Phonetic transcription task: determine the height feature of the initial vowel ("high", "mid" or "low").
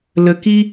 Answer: mid